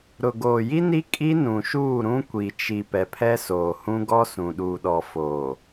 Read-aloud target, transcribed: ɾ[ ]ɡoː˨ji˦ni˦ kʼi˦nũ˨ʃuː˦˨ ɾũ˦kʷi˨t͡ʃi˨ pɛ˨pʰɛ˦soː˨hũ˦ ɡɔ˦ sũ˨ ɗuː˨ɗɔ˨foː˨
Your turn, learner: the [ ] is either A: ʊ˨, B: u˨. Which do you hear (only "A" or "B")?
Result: A